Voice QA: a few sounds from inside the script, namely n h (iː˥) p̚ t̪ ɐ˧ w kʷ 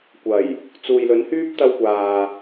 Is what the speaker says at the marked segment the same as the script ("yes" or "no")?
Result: no